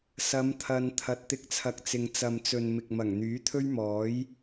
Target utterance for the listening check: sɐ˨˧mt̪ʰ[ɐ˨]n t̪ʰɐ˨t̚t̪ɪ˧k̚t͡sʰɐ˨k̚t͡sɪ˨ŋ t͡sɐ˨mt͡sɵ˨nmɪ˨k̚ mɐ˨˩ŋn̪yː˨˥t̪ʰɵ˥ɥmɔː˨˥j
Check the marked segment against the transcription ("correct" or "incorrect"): correct